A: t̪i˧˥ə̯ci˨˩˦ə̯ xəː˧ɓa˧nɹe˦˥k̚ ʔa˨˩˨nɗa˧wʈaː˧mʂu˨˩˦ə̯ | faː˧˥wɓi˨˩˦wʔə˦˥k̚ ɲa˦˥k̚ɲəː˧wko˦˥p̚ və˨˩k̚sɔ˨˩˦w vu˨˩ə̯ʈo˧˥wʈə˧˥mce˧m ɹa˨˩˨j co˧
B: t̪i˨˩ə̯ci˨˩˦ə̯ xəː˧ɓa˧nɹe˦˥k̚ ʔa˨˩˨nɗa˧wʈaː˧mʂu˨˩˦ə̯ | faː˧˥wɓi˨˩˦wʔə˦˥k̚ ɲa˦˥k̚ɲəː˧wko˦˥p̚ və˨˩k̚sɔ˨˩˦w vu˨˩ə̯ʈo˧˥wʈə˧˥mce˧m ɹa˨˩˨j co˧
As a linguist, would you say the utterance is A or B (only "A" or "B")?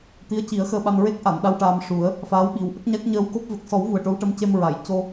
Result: A